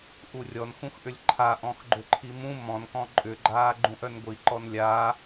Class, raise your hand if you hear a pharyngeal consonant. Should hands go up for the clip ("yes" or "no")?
no